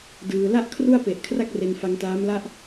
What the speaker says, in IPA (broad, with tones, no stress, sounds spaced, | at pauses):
d ɯː˧ l a˥˩ ʔ kʰ r u˥˩ a̯ p e˨˩ ʔ kʰ r a˥˩ k̚ r e˧ n f a˧ ŋ t aː˦˥ m l a˥˩ ʔ